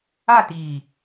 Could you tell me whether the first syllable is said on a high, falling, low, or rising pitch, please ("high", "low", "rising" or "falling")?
falling